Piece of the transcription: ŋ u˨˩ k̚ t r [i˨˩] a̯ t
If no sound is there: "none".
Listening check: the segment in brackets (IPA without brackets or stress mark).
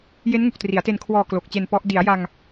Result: i˩˦